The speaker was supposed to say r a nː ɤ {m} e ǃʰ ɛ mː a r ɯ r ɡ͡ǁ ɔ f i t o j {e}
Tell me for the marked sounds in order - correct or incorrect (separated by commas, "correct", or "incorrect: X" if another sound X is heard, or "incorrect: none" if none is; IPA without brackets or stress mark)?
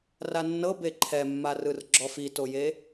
incorrect: b, correct